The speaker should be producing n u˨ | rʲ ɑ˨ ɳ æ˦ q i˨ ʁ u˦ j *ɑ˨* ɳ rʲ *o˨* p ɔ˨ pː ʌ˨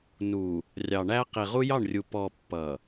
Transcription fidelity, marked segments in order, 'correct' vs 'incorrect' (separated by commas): incorrect, incorrect